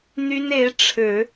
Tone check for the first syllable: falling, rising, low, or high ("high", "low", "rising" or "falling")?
high